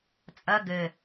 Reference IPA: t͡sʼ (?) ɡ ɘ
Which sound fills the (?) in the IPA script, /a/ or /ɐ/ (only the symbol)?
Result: ɐ